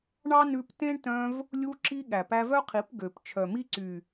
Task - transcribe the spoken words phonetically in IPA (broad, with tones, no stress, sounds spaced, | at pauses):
ɳ ɑ˦ n ʉ˧ p t ẽ˦ ɳ t œ̃˧ v | lʲ u˧ ǁ i˧ ɠ æ˨ p æ˧ v œ˦ qʰ i˨˦ p ɡ ø˨ p t͡ʃʰ œ˨ m i˦ ǀ y˨